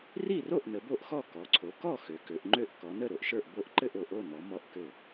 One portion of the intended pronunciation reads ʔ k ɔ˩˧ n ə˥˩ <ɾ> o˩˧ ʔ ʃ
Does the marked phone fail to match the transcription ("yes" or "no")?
no